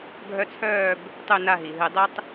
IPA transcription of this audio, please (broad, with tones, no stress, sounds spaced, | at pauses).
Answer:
ɡʱ œ˦ t͡sʰ œː˥˨ b | tˤ ʉ˥˨ n a˥˨ ɦ i˩ ɦ ɨ˧˩˧ dˤ ɨ˦ tˤ